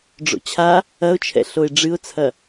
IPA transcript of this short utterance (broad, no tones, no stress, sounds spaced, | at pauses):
ɖ͡ʐ o̰ t͡ɕʰ a | ɐ ʊ̯ t͡ʃʰ ɛ̰ ɬ o ɪ̯ ɖ͡ʐ ɨ ʊ̯ t͡sʰ ɐ